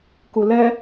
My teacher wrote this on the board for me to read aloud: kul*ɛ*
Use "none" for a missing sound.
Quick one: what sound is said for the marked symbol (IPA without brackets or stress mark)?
ɛ